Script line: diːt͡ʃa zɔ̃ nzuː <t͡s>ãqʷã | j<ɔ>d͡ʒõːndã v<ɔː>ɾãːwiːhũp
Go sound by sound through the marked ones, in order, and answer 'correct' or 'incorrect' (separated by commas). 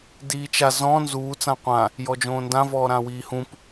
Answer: correct, correct, correct